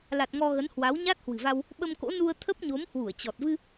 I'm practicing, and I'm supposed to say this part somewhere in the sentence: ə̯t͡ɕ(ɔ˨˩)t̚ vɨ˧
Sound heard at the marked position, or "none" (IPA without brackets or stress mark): ɔ˨˩